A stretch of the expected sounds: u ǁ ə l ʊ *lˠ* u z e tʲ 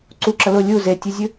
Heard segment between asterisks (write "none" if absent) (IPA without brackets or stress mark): lʲ